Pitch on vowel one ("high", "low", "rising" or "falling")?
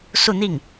falling